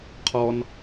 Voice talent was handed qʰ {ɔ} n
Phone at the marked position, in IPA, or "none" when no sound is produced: ɔ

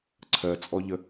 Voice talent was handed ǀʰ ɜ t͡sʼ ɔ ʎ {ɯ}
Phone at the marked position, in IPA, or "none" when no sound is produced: ə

